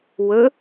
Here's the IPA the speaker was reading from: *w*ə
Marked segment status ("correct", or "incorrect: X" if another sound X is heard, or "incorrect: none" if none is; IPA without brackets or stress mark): correct